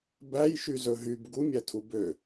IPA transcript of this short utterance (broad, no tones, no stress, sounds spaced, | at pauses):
b æ j ʃ y z ɵ ɦ y b ɡ u mʲ æ tʰ u b ø